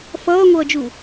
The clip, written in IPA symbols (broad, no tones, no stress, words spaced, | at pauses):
fʌːŋʷʌːd͡ʒu